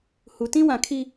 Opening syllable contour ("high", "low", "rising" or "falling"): low